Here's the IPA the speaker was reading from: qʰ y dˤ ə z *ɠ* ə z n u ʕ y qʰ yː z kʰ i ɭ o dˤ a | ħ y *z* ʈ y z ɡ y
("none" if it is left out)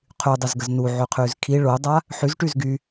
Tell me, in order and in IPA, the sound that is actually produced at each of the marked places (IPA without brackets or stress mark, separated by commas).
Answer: ɡ, z